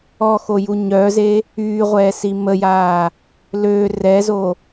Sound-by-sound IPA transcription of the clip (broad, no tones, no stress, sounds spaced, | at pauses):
ɔ x o j u ɲ œ z e | yː ʁʷ ɛː s i m ə j aː | l ø r ɛ z o